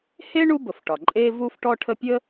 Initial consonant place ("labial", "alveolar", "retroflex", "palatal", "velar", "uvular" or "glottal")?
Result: glottal